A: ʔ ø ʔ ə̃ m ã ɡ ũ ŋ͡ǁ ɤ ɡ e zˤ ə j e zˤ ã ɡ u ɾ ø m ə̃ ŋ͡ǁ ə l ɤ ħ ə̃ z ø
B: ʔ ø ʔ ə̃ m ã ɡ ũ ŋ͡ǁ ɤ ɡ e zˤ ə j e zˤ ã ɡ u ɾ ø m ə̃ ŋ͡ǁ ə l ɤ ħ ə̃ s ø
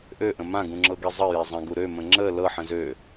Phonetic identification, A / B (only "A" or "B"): A